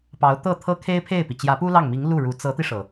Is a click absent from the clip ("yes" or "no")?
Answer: yes